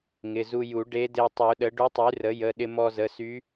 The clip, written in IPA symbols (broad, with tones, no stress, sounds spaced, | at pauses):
ŋ ɪ˩˧˩ z u˧ j u˨˩˦ ɖ e˧˥ d e˧ tˤ u˨˩˦ ɗ ə˩˥ ɖ u˧˥ tˤ y˩˥ r ə˩˥ j ə˩˧˩ ɗ ɪ˧ m ɔ˧ z ə˩˧˩ s y˧˥